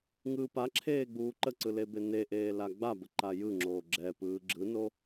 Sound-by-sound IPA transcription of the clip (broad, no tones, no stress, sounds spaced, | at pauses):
ŋ ɯː p a ǁʰ eː ɡ͡b uː ǃ ə ǀ ɯ l e b e n e ʔ eː l a ɡ͡b a b ə ǃ a j ɯ ŋ͡ǁ oː ɡ͡ǁ ɛ p ɯː ɡ͡ǁ ɯ n o